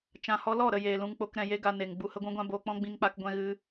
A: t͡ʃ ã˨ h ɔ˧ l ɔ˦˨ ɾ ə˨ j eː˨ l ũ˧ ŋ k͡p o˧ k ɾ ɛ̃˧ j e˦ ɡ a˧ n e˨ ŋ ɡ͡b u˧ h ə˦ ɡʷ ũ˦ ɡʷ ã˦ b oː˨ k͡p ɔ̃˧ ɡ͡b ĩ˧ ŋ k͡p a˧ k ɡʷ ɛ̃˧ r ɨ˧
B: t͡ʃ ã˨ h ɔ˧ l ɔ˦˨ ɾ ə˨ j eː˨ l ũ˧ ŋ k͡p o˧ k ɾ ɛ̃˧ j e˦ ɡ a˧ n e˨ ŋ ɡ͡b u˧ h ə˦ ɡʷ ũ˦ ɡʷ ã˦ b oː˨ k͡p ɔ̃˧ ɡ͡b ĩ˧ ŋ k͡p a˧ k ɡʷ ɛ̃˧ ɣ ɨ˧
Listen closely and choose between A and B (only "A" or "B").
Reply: B